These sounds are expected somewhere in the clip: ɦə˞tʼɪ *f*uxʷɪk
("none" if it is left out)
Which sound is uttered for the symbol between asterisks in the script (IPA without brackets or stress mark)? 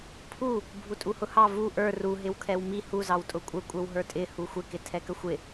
h